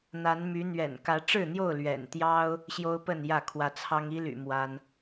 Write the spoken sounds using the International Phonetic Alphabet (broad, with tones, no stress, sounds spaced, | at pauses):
n̪ a˨˦ n m y˨˦ n̪ ɥ ɛ̰˨˩ n k ä˨˦ ʈ͡ʂ ɻ̩˥˨ n̪ j o˥˨ ʊ̯ l ɥ ɛ̰˨˩ n t̪ j ɑ˦ ʊ̯ | ɕ j o˦ ʊ̯ p ə˥˨ n j ä˥˨ kʰ w ä˨˦ t͡sʰ ɑ˦ ŋ i˦ l y̰˨˩ m w a˦ n